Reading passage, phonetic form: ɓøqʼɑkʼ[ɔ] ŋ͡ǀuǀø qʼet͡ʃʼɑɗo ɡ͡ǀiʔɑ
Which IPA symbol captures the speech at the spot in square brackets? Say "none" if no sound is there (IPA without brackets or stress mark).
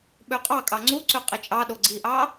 ɑ